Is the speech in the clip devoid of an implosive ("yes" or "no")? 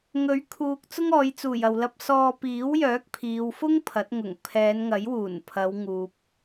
yes